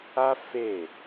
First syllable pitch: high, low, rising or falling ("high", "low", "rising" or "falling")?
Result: high